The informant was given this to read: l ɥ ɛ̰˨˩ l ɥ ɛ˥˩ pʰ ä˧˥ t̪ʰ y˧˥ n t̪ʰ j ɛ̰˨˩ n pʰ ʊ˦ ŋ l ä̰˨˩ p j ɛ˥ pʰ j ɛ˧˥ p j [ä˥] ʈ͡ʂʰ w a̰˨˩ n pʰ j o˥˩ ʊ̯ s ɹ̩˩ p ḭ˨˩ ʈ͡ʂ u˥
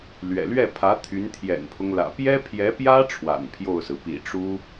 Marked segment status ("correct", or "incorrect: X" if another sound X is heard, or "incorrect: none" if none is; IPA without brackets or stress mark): correct